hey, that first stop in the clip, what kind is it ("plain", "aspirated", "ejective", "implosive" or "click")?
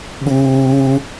implosive